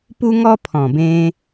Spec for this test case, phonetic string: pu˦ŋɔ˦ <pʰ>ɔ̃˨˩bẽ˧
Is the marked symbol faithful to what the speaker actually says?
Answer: yes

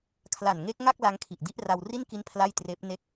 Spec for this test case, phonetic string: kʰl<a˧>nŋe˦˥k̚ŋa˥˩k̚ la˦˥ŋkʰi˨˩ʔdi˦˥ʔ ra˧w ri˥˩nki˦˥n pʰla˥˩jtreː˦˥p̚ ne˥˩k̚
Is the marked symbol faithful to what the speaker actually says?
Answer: no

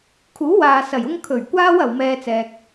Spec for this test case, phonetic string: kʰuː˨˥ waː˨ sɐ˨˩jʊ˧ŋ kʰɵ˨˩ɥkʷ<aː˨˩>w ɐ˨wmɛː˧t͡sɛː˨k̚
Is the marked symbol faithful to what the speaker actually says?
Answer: no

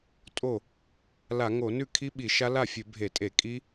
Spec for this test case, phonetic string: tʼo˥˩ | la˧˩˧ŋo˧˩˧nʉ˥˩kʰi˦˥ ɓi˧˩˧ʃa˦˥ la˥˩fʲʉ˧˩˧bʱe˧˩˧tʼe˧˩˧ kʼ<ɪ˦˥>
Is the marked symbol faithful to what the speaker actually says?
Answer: no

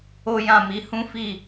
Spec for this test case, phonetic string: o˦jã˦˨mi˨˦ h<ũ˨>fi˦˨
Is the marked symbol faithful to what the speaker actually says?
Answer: no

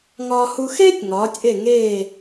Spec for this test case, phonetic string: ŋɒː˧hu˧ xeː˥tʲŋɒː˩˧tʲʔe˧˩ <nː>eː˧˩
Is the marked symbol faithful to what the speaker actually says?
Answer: no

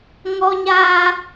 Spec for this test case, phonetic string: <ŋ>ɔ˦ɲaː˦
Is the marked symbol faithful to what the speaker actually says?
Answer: yes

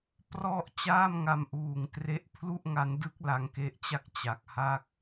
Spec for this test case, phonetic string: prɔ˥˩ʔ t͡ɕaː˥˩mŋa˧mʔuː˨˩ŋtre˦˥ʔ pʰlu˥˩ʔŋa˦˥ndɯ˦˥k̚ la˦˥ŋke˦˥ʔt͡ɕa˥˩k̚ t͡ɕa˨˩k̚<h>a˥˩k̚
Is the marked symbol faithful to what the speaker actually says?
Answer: yes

